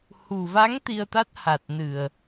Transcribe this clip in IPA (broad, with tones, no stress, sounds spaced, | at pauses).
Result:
h u˨˩ v a˧˥ ŋ t̪ i˧ ə̯ t̪ a˦˥ t̚ h a˨˩ t̚ n ɨ˨˩ ə̯